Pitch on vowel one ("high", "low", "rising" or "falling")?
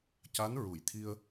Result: rising